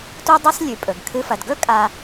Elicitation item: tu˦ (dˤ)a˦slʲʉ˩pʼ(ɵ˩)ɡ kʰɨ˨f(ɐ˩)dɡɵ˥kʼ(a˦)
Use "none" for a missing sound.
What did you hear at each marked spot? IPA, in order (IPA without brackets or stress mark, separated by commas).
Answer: dˤ, ɵ˩, ɐ˩, a˨